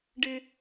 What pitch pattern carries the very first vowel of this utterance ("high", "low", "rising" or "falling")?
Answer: high